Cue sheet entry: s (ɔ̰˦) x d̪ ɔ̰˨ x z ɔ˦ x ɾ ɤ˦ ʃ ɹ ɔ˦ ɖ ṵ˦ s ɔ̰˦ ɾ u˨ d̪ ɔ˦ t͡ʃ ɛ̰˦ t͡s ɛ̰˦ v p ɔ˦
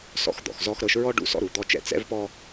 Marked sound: incorrect: ɔ̰˨˦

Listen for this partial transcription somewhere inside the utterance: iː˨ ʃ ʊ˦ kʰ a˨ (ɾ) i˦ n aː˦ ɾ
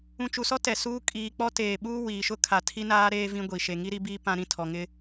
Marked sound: incorrect: tʰ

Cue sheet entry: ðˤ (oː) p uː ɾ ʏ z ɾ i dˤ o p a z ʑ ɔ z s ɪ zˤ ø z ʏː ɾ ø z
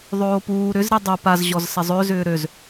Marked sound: correct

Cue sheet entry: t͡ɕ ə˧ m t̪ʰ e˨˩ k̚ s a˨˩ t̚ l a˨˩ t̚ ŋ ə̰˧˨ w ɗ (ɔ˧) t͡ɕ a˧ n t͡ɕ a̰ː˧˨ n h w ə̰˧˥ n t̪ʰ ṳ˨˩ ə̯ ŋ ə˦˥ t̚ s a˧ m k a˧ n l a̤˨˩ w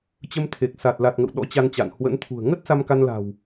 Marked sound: incorrect: ɔ̰˧˥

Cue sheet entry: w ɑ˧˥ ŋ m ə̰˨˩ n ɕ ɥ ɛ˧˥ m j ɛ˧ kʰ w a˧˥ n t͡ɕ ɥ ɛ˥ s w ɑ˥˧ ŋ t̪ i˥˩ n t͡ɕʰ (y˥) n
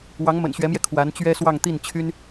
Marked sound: correct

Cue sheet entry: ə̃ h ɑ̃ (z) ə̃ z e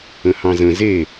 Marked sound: correct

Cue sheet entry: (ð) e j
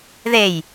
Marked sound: correct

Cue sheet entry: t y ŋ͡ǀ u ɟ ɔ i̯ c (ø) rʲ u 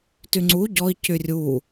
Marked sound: incorrect: y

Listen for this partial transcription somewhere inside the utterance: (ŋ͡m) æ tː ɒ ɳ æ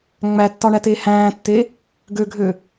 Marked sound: correct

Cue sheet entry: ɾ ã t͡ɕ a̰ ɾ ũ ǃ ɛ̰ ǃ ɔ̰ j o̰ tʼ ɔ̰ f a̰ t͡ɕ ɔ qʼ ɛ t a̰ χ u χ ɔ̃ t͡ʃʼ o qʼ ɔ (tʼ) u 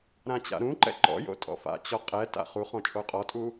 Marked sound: correct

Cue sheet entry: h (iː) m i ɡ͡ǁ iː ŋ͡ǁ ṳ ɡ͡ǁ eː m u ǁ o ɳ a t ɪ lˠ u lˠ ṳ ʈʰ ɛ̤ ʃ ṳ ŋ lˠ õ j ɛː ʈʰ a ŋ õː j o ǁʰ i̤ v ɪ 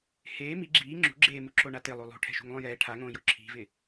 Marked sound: incorrect: eː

